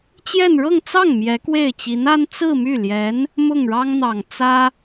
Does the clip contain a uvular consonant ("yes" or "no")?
no